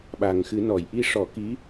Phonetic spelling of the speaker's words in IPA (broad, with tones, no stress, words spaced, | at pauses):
ɓa˨˩ŋxɨ˨˩˦nɔ˨˩˨j ʔi˧ʂɔ˨˩˦ki˧˥